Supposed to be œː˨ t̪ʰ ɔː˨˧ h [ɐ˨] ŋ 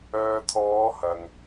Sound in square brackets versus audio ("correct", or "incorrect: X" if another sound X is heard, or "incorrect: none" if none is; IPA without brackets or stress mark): correct